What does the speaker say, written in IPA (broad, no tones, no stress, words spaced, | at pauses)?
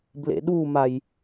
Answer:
blḛɗumaj